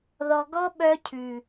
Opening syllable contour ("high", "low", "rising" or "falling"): low